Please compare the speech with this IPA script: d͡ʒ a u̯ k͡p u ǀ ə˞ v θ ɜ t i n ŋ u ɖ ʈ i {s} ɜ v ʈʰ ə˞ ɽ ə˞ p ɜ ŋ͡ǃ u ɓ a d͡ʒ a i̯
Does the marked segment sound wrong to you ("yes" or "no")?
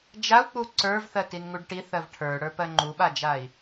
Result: yes